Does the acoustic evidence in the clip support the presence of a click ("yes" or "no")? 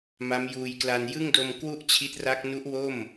no